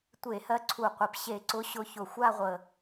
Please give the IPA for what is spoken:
tʷe˧˩˧hɜ˨˦ ǀʰu˨˩qʷɘ˨˩p ɕe˧˩˧ǀʊ˨˦ ɕʊ˨˦çʊ˨˩ xʷa˥˧ʁʷə˨˩

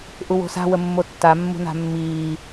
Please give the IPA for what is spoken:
ʔuwo̤sa̤ wəmːotːa mːṳna̤mːiː

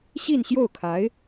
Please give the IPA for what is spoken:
ɕi˥˧nɕjo˥˩ʊ̯kʰa˧˥ɪ̯

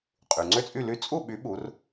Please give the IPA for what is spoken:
qʼy˩ŋ͡ǀø˥˨t͡sʼy˥˨ly˥˨ t͡sʼu˥˨ɓy˨˦ ɓu˨˦r

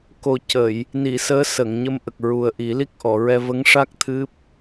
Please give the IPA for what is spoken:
ko˨˩ cə˨˩˨j | ni˨˩˨ səː˧˥sə˨˩˨ŋ ɲə˧mʔə˨˩k̚ɹu˨˩ə̯ʔi˨˩˦ li˦˥k̚ʔɔ˨˩˨ɹɛ˧ və˧˥ŋʂa˦˥k̚ t̪ʰɨ˦˥p̚

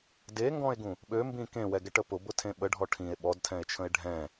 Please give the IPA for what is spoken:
deŋɡɔ̃e̯ɡũ | ɓømbĩ kẽwɛɡɛʈə pʊbʊtʰẽ ɓəɖʱɔ ʈʰĩe̯ ɓɔdtʰɛ̃e̯t͡ʃʰə̃e̯ ɖʱɛ̃

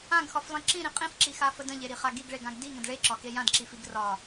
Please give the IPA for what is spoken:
ãɡxɒflˠĩ ǁĩɾĩ qʼĩfǁixafə də̃ʎeɾiχa ɡiɡɭeɡãɡ diŋə̃d ɭeǁɒke jãdǁifiɡ rɒ

